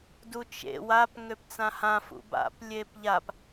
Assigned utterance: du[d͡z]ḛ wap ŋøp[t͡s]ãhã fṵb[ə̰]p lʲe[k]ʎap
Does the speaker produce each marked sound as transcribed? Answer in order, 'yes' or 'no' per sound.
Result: no, yes, no, no

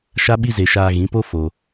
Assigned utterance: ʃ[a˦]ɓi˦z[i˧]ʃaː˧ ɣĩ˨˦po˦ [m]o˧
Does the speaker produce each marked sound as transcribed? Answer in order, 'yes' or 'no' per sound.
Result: yes, no, no

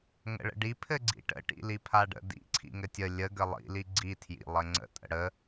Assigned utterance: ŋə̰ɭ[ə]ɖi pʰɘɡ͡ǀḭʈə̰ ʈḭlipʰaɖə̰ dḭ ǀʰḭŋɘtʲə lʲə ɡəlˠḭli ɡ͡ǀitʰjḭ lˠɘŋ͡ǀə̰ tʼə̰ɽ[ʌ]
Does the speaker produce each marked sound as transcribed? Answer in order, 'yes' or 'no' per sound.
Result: no, no

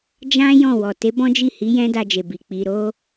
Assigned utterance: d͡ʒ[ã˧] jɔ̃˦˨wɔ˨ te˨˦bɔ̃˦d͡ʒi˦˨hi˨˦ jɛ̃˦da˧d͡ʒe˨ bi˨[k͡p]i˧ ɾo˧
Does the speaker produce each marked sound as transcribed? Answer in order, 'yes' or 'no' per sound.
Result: no, yes

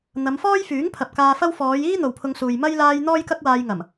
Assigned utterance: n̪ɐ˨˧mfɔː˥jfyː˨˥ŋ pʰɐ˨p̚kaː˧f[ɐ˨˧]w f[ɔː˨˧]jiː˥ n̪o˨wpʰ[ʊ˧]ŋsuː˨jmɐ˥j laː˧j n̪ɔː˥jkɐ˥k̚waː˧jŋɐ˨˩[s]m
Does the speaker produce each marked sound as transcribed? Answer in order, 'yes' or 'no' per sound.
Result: no, yes, yes, no

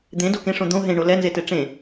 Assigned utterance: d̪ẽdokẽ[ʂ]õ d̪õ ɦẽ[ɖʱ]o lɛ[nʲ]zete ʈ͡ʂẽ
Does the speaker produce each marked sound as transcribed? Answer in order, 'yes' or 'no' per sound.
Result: yes, no, no

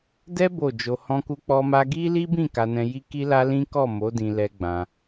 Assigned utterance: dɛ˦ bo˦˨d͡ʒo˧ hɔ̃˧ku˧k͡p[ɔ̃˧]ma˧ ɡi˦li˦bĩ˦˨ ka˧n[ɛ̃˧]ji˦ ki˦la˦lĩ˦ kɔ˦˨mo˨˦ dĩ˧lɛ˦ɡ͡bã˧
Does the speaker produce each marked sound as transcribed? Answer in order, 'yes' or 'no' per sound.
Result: no, yes

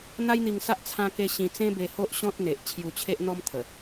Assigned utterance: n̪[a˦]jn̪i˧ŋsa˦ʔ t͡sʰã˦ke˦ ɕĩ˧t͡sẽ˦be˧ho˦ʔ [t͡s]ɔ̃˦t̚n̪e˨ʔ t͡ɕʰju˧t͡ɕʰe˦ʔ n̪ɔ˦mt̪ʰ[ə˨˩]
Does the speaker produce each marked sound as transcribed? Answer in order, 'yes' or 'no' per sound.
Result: yes, no, yes

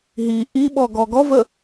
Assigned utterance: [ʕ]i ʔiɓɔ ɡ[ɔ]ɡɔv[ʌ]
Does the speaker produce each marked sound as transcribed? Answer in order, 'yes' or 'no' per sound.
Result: no, yes, no

